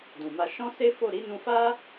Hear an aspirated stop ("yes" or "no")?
no